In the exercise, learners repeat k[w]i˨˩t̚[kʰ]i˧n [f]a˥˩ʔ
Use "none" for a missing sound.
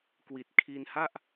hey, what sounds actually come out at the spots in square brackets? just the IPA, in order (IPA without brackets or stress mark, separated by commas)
w, kʰ, h